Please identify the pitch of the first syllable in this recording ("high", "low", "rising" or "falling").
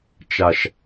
low